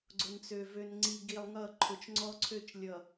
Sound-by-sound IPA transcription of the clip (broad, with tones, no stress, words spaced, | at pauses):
ɡ͡ǀʊ˨nt͡sø˨ vø˨nŋ͡ǀi˨ ɡi˨lˠŋʌ˦˨ ǃʰʊ˨t͡ʃŋ͡ǀɔ˦ǀʰø˦˨t͡ʃ lʲʌ˨